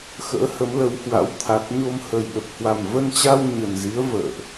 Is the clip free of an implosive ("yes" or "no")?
no